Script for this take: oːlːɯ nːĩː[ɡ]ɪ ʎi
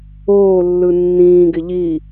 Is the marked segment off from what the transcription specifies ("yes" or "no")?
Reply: no